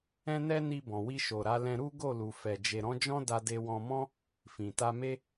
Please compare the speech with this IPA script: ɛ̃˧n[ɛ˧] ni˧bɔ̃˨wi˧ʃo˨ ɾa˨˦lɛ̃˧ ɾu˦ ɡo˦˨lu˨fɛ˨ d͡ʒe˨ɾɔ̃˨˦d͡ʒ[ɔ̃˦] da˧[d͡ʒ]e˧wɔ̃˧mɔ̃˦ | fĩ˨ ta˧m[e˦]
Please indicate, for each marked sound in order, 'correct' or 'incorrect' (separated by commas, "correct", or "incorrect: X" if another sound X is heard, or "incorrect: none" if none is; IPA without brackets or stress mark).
correct, correct, incorrect: d, correct